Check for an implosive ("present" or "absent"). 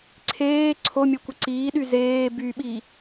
present